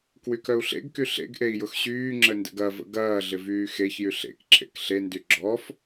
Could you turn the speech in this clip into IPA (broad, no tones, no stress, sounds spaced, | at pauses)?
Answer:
k w y k œ u̯ ɬ ḛ ɡ k y ɬ ḛ ɡ ʔ e i̯ j ʊ x ɕ yː ŋ͡ǁ ə n d ə̰ ɡ ɐ v ə̰ ɡ ɐː ɮ ɪ v yː x e ç j y ɬ ḛ k ǁ ḛ k ɬ e n d y ɡ͡ǁ ɔ f